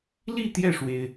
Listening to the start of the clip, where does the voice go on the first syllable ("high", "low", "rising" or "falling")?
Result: falling